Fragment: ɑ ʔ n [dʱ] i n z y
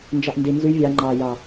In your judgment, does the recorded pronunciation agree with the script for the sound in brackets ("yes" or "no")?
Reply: no